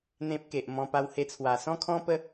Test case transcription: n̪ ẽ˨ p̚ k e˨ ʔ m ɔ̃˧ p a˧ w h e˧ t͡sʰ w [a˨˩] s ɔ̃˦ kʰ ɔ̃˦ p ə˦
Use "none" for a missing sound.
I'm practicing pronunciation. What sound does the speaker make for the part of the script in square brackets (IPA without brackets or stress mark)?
a˨˩